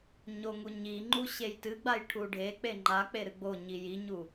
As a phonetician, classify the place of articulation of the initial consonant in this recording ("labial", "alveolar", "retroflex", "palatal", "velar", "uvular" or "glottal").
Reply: palatal